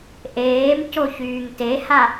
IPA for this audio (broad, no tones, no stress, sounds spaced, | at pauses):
ʔ eː m c o ç yː ŋ t e h a